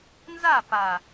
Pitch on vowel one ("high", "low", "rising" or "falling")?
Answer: falling